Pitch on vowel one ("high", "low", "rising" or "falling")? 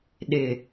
low